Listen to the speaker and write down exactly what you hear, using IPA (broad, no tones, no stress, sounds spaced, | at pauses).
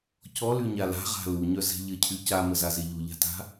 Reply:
c ɔ l y ɲ a l a̤ ʁ a̤ l u ɲ œ z ɛ̤ ʎ ə cʰ y c a m ə z a z e ʎ u ʎ a̤ t a̤